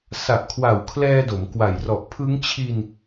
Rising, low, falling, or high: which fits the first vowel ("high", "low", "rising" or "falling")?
low